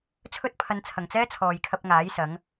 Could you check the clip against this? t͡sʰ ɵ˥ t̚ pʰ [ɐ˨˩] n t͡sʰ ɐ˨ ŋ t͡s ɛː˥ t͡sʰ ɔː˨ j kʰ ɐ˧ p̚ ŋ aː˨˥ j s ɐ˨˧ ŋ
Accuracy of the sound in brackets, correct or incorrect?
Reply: incorrect